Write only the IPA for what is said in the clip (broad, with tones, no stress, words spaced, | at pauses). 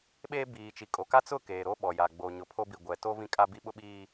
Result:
ɓeː˦ biː˨ t͡ʃi˨kʼo˨ ka˦t͡sʊ˦˨ keː˨ɾo˦ɓɔ˨ja˨ ɡ͡boː˨ɲʊ˨pʰo˦bi˨ ɡʷɛ˨ to˦ vĩ˦kʼa˦ bi˦ɓʊ˦ɓiː˦